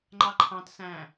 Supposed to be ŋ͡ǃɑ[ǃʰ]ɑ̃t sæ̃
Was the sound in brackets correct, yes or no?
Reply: yes